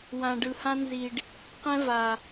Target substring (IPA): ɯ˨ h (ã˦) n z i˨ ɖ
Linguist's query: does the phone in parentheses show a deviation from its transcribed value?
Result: no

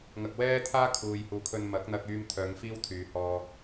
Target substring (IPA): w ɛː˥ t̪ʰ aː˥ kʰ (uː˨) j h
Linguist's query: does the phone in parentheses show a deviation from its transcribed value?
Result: no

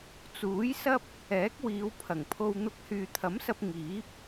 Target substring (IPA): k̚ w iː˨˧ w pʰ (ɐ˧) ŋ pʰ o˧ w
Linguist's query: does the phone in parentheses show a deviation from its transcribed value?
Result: yes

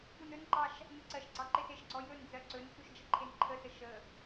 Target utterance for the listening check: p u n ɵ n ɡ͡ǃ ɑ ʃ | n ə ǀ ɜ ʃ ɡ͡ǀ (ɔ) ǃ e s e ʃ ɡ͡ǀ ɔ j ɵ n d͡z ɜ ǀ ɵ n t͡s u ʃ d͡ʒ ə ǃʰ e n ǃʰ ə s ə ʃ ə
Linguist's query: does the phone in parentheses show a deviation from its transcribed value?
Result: yes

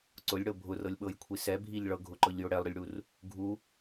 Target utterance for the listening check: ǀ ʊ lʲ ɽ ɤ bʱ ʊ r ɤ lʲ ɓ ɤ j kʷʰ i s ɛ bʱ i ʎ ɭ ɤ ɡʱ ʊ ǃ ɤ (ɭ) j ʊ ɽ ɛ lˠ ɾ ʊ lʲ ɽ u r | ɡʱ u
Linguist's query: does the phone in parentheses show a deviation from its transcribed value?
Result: yes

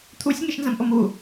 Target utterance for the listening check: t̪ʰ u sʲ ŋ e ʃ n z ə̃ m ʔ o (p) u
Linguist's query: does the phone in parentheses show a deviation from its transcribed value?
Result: yes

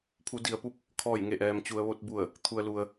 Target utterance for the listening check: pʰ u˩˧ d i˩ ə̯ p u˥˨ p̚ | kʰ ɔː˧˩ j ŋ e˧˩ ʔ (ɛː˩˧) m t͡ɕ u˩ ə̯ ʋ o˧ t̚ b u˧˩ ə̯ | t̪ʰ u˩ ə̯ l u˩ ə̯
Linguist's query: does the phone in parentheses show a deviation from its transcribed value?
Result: yes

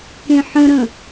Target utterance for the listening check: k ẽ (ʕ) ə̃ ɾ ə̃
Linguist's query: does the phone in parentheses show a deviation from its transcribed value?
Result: yes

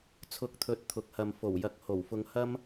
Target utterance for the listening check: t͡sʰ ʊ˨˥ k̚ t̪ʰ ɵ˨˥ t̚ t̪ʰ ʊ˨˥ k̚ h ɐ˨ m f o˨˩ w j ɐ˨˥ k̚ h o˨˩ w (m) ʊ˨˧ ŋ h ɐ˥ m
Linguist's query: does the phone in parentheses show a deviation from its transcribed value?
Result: yes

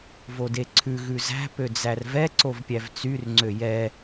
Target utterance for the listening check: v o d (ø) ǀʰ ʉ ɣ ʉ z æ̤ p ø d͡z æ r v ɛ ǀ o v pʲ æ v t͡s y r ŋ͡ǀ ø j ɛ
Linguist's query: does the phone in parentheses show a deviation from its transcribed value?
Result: yes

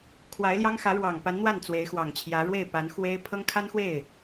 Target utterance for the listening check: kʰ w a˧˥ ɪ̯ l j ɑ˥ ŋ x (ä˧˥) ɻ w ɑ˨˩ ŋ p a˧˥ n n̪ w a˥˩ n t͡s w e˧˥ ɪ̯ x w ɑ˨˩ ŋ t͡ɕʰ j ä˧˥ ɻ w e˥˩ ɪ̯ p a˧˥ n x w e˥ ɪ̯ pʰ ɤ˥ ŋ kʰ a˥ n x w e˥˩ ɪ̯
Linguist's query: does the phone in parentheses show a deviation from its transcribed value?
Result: no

